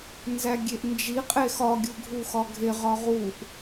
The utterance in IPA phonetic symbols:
n z æ ɡʲ e ʔ n d͡ʒ i qʼ e x ɒ ɡʲ u ɡʱ u x ɒ ɡʱ e ʁ ɒ ʁ u ʔ

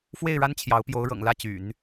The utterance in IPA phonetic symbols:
f w e˥˩ ɪ̯ ɻ a˥ n t͡ɕʰ j ɑ˧˥ ʊ̯ p j o˧˥ ʊ̯ ɻ ɤ̰˨˩ ŋ l ä˥˩ t͡ɕ y̰˨˩˦ n

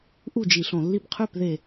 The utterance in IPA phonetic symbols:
ʔ u˥˩ d͡ʒ i˧˩˧ ɬ õ˧˩˧ lː i˧ b qʰ ø˥˩ p ð e˧˩

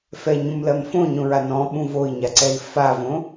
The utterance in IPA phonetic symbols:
f ɛ ɲ ũ m l ɜ m f õ ɲ õ ɹ a n ɔ̃ ɓ ũ v o i̯ ɲ a ǀ ɛ i̯ f a v õ

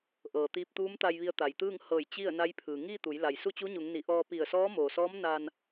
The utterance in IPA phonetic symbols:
ʔ ɤː˩ t̪ iː˧ p̚ t̪ uː˧˥ m t̪ a˧ j ʋ i˧ ə̯ t̪ a˩ j t̪ ɯː˥˨ ŋ h ɤː˧˩ j t͡ɕ i˥˨ ə̯ n a˧˥ j pʰ ɯː˩ ŋ iː˥˨ t̪ u˩˧ j l a˩ j s u˥˨ t͡ɕ u˧˥ ɲ u˩˧ ŋ n i˩˧ ʔ ɔː˧ p i˧˩ ə̯ s ɔː˧˥ m oː˩ s ɔː˧˥ m n a˧ n

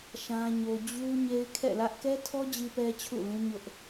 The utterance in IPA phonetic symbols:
ʃ ã˦ ɲ o˦ d͡ʑ u˦ ɲ e˦ ɪ̯ kʰ ɛ̰˦˨ l ä˦ ʔ k ɛ˦ tʰ ɔ˦ d͡ʑ i˦ p ɛ˦ t͡ɕʰ ṵ˦˨ l ũ˦ ɲ ʊ˦ ʔ

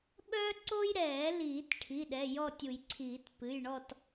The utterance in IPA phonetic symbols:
ɓ œː˥ ǀ o˥ j ɾ ɛː˨˩˦ l iː˨˩˦ t ʈʰ i˩˧˩ ɗ ɛ˩˧˩ j ɔ˥˨ tʲ u˨˩˦ j ǀʰ iː˨˩˦ t p ɨ˩˧˩ j ɳ ɔ˥˨ t

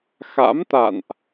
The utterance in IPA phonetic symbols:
x a̰˧˥ m t̪ a̰˧˨ n ʔ

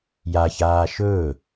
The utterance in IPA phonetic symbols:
j a ç aː ʃ ɵː

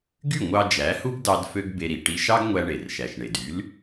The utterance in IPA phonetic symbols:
ɡ y˥˩ ŋʷ ɑ˧ d͡ʒ æ˩˥ h u˥ ɡ d ɑ˧ d f ø˥ ɡ b e˧ ɾ i˩ ʈ i˧ ʃ ɑ˥ ɡ ŋʷ æ˧ ɳ e˩ r ʃ æ˩ ʃ ɳ e˩ d y˩˥ l

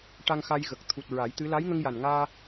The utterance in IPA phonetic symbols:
ʈ a˧ ŋ x a˧ j ɣ ə˨˩ k̚ t̪ʰ u˨˩ t̚ ɹ a˨˩˦ j t̪ ɨ˧˥ l a˧˥ j ŋ ə˧ ŋ j a˨˩ n ŋ aː˧

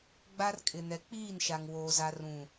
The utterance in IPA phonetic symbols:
ɡ͡b a˦ r kʼ ɪ˨ n ɛ˨ k͡p iː˦˨ n ʃ a˨ ŋ w oː˨ z a˨ r ũ˨

